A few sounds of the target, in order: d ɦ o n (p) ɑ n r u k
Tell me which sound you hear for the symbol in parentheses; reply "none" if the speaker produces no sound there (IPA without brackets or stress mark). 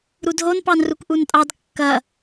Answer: p